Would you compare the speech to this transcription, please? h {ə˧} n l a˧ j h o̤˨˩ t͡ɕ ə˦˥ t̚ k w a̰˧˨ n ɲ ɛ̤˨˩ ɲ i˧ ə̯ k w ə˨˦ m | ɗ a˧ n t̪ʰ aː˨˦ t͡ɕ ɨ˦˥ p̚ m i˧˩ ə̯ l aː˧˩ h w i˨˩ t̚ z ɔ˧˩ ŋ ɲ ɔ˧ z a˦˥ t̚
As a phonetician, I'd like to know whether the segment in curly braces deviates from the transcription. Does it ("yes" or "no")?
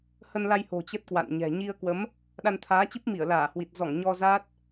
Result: no